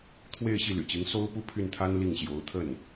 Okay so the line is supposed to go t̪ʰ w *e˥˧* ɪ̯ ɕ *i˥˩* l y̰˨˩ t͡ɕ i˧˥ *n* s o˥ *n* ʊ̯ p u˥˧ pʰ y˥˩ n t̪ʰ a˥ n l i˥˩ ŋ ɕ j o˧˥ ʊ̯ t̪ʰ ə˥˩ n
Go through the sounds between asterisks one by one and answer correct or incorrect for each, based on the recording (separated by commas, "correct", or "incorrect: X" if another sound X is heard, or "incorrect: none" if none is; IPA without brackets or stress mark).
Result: correct, correct, incorrect: ŋ, incorrect: none